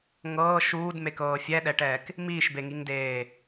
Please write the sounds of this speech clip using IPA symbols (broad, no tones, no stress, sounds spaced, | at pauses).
ŋ ɤː ʃ uː d m e k ɤː fʲ ɛ ɗ ɛ ʈ ɛː k | m iː ʃ b e ŋ i ŋ d eː